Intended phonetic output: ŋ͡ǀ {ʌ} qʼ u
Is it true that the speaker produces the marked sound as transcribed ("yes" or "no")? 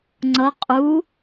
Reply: yes